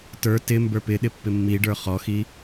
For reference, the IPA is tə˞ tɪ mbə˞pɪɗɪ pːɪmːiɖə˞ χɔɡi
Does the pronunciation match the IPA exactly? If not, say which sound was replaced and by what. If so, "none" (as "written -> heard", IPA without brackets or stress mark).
ɡ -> x